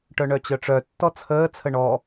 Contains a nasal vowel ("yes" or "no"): no